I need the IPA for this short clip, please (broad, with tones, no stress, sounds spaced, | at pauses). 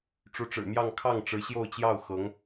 ʈ͡ʂ u˧˥ ʈ͡ʂ ɻ̩˨˩ m j ɑ˥˧ ŋ kʰ ɑ˥˩ ŋ ʈ͡ʂ ɻ̩˧˥ ɕ j o˥˧ ʊ̯ t͡ɕ j ɑ˥˩ ʊ̯ x ɤ˧˥ ŋ